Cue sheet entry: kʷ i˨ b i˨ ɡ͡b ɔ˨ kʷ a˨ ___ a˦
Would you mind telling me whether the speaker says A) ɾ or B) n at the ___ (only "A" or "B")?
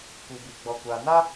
B